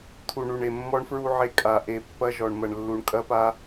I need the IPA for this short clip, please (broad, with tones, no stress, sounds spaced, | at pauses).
t̪ʰ u˨ ɳ u˨ ɳ e˨ mː ɔ˦ ɳ f ɹ u˦ ʕ e˦˨ kʼ a˨ ʔ e˨ pː ɐ˦ ʒ ɔ˨ ɳ m ɐ˨ ɳ lː u˨ ɳ kʼ ɐ˦ p a˦